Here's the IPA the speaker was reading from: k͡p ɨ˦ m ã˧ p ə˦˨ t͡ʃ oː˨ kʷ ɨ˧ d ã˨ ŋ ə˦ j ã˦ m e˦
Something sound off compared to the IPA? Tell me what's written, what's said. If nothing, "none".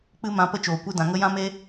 none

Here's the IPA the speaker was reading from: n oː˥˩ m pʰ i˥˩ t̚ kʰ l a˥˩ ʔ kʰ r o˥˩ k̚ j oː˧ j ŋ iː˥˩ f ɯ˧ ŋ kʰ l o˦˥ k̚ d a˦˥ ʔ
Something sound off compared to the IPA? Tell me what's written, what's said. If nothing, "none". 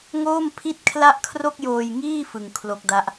n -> ŋ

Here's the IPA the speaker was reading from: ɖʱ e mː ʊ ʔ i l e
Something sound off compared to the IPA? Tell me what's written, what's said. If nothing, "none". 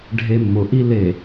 none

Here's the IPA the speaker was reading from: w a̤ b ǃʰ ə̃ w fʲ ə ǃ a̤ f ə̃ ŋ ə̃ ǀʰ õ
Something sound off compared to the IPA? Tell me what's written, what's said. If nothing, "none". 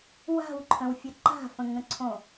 b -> w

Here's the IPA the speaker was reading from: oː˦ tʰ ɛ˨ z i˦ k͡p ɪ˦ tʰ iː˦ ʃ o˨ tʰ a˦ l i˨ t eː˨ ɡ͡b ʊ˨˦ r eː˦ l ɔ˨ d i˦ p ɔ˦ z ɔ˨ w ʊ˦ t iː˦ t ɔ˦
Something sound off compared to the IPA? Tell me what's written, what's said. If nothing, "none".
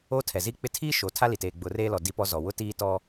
none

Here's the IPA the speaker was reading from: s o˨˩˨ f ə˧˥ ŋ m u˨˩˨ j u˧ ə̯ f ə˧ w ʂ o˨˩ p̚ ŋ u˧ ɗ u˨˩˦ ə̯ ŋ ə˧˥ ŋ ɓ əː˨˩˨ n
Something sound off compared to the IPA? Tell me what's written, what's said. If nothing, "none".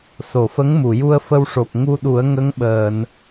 none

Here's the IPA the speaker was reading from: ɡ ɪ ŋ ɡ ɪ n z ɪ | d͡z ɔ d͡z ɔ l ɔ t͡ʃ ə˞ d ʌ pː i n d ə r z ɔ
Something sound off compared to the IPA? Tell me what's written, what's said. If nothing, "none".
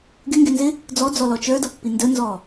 r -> n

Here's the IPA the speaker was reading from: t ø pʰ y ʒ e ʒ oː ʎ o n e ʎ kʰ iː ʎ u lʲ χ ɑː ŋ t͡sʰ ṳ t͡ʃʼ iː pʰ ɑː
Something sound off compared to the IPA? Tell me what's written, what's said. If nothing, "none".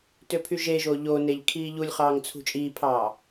none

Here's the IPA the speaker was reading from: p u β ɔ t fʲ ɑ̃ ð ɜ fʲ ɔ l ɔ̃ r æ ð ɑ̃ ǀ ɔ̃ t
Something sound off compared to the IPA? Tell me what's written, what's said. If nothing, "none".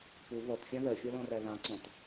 none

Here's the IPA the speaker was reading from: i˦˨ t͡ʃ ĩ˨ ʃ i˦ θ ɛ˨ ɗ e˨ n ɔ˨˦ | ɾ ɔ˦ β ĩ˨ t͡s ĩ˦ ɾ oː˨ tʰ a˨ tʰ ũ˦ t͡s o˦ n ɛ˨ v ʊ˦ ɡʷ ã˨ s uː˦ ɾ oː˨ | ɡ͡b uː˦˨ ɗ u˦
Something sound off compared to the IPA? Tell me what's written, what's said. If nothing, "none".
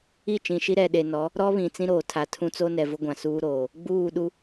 θ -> ɾ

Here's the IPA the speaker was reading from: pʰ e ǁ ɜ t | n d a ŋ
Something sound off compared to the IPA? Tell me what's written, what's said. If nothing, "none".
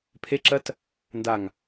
none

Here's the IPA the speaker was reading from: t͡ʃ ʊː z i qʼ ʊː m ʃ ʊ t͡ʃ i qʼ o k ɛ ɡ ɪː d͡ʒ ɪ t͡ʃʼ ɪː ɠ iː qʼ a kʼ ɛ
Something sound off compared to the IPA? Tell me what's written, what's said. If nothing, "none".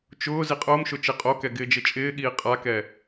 kʼ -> k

